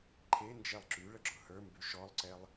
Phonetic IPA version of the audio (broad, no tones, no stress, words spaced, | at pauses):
ǃʰe nd͡ʒɛlˠǁyɭə ɡ͡ǁʊhə˞mby ʃɔlˠǀɛlˠ